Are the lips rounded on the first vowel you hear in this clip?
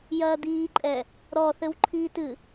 no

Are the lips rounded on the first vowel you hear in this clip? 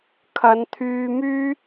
no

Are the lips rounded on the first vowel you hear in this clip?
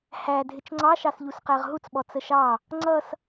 no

